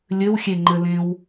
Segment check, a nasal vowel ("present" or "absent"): present